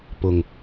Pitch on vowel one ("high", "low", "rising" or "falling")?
low